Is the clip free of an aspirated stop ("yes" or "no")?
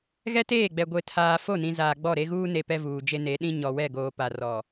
no